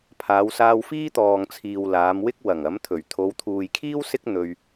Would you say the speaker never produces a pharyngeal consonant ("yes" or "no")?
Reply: yes